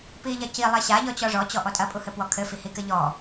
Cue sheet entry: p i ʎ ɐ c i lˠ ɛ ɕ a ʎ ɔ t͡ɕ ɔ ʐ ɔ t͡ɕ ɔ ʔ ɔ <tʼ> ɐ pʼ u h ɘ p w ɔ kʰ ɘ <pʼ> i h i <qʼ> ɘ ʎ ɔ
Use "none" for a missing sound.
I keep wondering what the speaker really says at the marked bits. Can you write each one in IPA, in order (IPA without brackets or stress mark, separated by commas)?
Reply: tʼ, f, k